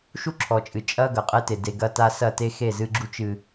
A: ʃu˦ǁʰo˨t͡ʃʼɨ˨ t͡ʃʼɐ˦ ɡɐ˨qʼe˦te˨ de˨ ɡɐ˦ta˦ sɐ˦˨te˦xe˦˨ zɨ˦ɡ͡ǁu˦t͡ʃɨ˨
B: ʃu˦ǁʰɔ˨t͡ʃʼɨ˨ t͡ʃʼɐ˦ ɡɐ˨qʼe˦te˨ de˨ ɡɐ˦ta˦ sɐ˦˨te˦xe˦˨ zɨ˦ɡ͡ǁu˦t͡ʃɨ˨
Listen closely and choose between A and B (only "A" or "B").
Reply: B